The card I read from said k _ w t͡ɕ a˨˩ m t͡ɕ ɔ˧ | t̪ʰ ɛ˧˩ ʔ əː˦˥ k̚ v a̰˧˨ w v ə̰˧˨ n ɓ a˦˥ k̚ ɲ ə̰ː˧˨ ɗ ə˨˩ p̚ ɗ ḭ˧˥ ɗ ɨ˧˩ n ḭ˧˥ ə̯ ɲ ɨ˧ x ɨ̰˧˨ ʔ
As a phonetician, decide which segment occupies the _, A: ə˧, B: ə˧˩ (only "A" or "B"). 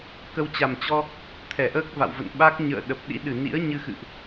A